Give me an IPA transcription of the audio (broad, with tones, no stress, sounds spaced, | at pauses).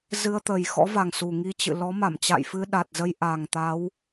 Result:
z ɨ˧ ə̯ t̪ ə˨˩ j x ɔ̰˧˥ v a˨˩ ŋ s u˨˩ ŋ i˧ t͡ɕ ɨ̰˧˨ l ɔ˨˦ m a˧˩ m t͡ɕ a̰˧˨ j f ɨ˧ ɗ a˨˩ t̚ z ə˧ j ʔ a˨˩ ŋ t̪ a˨˦ w